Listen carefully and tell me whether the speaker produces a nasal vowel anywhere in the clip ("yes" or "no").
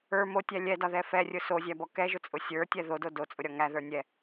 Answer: no